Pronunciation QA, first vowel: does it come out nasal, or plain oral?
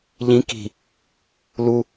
nasal